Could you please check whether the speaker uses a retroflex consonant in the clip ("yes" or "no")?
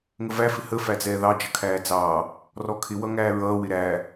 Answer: no